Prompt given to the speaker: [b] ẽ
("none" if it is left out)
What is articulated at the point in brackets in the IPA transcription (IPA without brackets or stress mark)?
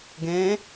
ɡ